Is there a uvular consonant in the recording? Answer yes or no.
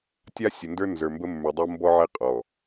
yes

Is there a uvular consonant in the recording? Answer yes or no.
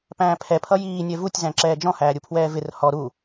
no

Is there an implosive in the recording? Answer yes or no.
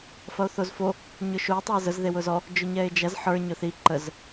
no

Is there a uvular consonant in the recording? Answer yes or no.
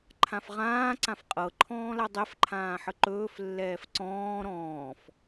yes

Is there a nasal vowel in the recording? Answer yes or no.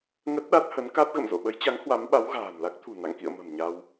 no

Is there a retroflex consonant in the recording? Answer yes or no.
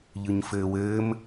no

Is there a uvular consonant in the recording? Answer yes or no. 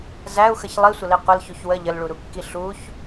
yes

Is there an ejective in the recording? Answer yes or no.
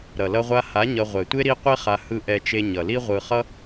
no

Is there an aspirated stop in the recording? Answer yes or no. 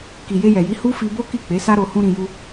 no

